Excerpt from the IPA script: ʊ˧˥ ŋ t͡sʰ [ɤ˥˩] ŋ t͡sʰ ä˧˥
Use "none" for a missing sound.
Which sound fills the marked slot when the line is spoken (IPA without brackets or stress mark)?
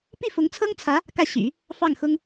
ɤ˥